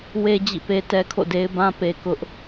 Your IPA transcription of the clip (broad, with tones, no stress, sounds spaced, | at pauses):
w e˦ d͡ʑ ḭ˦˨ p e˦ t ɛ˦ kʰ o̰˦˨ d e˦ ɪ̯ b ã˦ p e˨ k ʊ˦ ʔ